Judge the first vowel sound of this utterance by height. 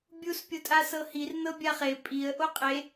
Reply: high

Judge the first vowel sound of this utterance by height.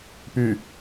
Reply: high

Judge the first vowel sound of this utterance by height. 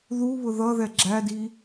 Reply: high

